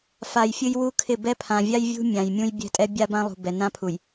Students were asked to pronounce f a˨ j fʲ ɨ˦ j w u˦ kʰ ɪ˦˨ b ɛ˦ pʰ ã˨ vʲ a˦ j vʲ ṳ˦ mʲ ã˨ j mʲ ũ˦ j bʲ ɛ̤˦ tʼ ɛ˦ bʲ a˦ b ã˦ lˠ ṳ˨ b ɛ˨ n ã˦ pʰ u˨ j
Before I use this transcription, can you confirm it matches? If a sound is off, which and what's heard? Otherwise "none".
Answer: none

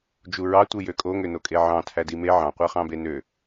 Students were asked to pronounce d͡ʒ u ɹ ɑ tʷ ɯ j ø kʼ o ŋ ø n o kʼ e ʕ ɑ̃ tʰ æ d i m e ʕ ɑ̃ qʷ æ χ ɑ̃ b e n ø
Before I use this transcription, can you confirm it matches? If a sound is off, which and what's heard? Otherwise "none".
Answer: none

